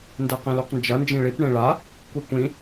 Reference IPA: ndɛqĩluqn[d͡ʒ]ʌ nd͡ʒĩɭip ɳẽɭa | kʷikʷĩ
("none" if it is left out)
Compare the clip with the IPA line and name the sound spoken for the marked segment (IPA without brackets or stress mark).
d͡ʒ